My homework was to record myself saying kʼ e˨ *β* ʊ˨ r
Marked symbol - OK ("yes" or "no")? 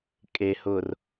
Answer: no